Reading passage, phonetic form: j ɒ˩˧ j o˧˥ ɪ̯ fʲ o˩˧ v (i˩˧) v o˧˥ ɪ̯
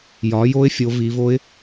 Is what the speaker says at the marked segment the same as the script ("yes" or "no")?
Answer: yes